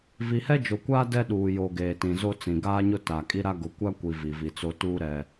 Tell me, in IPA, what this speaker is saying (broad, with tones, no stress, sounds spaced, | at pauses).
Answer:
v i˨ h ɛ˦ d͡ʒ o˨ kʷ aː˦ d ɛ˦ ɗ uː˨ j o˨ ɡ eː˨ t ĩ˨ z o˦ t͡s ĩ˨ ɡ aː˦ ɲ ʊ˦ t a˨ kʼ i˦ ɾ a˦ ɡ ʊ˨˦ kʷ a˦ kʷ i˨ v i˨ v i˨ t͡s o˦ t uː˦ ɾ ɛ˦